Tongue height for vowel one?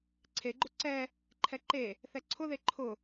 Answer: mid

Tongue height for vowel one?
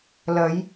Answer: low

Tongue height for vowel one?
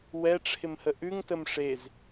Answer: mid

